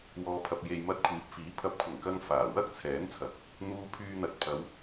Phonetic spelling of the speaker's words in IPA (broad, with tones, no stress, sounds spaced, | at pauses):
w ɔː˨ pʰ ɐ˨ p̚ j e˨ j m ɐ˧ t̚ kʷʰ iː˨˥ p̚ f iː˨˥ pʰ ɐ˨˥ p̚ kʷʰ ɐ˨˩ ŋ k ɐ˧ ŋ f aː˨˩ w ɐ˥ k̚ t͡sʰ ɛː˨˥ n t͡sʰ ɐ˨ k̚ | n̪ uː˧ pʰ yː˧ n̪ ɐ˨˥ t̚ pʰ ɐ˨˧ w